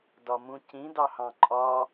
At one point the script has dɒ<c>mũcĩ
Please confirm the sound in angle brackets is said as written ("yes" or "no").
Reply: no